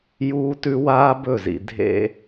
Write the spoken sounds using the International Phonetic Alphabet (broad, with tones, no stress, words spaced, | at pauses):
juː˦tʉ˦ waː˦bɵ˦˨zḭ˨ dʱḛ˦